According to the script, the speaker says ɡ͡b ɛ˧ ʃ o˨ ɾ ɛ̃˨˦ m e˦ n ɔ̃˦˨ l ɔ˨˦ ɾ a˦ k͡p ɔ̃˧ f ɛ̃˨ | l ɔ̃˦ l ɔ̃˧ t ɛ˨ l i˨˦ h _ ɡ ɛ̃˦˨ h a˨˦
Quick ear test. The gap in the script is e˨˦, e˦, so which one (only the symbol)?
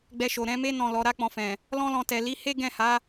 e˦